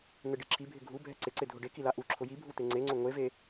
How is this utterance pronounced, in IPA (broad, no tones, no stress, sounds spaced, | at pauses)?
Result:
n̪ ɪ ɖ i ǁʰ i bʱ ɪ ɡʱ u bʱ ɛ ǀ ɪ ǀ ɪ dʱ ʊ ɖ e k i l a ʔ u ǁʰ ʊ j i bʱ u t̪ e ŋ͡ǀ e ŋ͡ǀ ʊ ŋʷ e v e